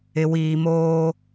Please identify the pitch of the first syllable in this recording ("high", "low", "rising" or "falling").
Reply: low